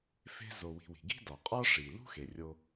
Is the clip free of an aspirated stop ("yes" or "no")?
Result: yes